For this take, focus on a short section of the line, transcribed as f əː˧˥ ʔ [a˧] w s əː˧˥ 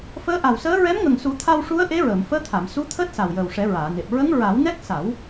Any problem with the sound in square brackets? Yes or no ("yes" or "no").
yes